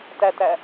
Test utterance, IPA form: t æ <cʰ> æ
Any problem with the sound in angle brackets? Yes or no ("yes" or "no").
yes